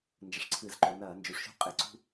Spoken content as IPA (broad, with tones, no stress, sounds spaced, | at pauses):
n d͡ʒ ə˩˧ ʂ ǀʰ ɨ˧˩˧ z ǃ o˩˧ n ɐː˧˩˧ n d͡ʒ u˩˧ ʂ ʃ ṳ˥ qʼ ɪ˧˩˧ ǀ ṳ˥